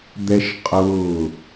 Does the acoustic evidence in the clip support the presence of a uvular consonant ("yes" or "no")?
yes